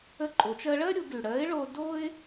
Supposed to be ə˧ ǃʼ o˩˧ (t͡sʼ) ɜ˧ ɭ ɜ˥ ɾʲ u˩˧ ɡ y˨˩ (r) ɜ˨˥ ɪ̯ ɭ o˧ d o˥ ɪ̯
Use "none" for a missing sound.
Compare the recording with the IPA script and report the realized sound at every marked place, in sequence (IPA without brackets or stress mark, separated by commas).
t͡ʃ, ɽ